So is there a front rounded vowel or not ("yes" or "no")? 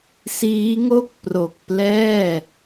no